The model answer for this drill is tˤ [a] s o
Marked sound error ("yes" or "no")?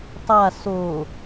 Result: no